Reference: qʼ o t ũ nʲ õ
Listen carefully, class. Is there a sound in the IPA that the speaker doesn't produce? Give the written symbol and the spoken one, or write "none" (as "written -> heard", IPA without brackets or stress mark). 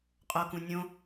t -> k